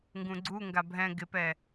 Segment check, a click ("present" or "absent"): present